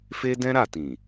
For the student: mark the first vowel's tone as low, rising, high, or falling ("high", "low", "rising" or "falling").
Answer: high